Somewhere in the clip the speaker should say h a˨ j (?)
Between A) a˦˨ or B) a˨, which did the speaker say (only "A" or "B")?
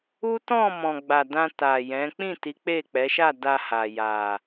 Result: B